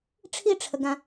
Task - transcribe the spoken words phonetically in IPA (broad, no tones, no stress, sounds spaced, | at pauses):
ʈ͡ʂʰ i ʈ͡ʂʰ ə ɡ ã